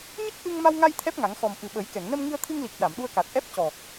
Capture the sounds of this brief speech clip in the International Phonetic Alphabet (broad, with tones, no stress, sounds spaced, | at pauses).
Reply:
ɲ ə˦˥ k̚ ʔ ɨ˧ ŋ m a˧ w ŋ a˧ j t̪ʰ ɛ˦˥ p̚ ŋ a˨˩˦ ŋ x ɔ˨˩ m ʔ ɨ˨˩ ɓ ə˨˩˦ j k ɛ˨˩˨ ŋ n ə˧ m ŋ ɨ˧ ə̯ t̪ʰ ɨ˧ ŋ l i˨˩ k̚ ɗ a˨˩˨ m ɗ u˧ ə̯ k a˨˩ t̚ ʔ ɛ˦˥ p̚ c ɔ˨˩ k̚